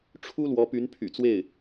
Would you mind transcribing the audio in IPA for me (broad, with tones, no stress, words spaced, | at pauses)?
ʈ͡ʂʰu˥ lwɔ˧˥py˧˥npʰy̰˨˩t͡swe˥˩ɪ̯